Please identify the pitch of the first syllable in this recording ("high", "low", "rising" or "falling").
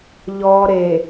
low